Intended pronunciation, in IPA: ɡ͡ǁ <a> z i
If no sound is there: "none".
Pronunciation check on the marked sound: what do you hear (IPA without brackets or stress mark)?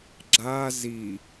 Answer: a